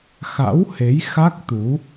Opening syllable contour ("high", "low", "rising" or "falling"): rising